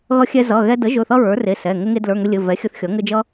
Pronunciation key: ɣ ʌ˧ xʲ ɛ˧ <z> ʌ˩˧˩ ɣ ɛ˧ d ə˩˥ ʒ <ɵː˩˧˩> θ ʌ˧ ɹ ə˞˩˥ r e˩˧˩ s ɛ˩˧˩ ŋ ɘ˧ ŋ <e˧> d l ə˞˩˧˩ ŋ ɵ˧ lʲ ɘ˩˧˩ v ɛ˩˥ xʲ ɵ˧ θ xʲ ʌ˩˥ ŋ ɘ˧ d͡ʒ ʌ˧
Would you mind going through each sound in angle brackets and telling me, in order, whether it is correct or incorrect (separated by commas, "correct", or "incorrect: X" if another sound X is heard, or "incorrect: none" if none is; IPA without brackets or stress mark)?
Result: correct, incorrect: ɵ˩˧˩, correct